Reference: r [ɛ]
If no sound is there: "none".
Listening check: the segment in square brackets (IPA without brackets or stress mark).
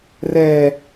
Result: ɛ